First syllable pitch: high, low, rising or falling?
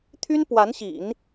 high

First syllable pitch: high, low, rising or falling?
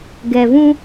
low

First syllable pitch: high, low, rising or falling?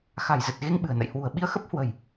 low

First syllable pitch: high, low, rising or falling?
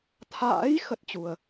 rising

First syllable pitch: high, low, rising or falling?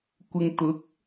low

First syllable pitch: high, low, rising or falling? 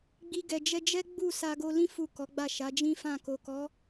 high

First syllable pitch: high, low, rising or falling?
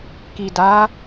low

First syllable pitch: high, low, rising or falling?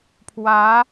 rising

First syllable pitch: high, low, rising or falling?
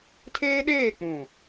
high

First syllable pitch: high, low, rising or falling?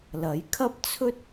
rising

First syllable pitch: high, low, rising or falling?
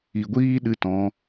low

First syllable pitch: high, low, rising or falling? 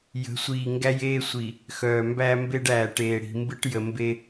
rising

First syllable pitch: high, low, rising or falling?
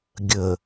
low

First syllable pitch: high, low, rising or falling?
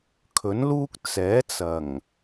rising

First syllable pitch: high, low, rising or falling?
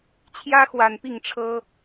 high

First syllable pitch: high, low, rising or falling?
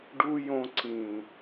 high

